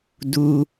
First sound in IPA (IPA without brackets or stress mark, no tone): d